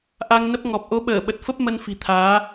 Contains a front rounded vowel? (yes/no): no